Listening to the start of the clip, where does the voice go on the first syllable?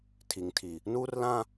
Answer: low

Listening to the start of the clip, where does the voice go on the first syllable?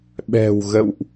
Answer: low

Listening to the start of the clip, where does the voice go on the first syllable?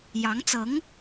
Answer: rising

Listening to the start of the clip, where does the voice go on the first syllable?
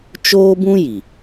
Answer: high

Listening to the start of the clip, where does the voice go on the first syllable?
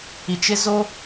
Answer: low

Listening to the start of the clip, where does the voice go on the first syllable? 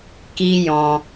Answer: high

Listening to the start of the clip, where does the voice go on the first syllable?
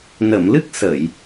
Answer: low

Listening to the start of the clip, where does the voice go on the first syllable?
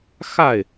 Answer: falling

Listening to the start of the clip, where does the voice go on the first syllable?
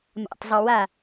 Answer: low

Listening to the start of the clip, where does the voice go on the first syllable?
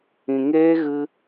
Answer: low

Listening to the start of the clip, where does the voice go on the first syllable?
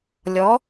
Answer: rising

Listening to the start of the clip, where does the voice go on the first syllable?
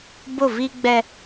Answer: falling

